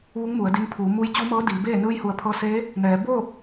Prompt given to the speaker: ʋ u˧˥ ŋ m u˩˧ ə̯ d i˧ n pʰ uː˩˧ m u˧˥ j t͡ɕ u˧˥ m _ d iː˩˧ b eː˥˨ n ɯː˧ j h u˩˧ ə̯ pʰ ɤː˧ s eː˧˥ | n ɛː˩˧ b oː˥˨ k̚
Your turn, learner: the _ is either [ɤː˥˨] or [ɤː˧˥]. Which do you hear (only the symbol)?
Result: ɤː˧˥